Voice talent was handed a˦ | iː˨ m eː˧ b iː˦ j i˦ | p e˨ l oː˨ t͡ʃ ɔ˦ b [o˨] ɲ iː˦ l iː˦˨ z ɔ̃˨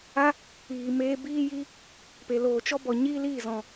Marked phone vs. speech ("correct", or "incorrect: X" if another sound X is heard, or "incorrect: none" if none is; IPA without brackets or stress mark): incorrect: ɔ˨